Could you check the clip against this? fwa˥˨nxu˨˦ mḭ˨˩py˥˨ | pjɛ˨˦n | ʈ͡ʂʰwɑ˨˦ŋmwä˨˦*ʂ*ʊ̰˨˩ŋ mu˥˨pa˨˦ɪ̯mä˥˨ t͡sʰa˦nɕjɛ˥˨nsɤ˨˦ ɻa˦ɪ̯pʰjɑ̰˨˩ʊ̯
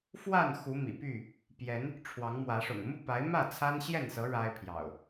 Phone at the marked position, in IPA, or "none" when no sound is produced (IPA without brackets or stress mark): ʂ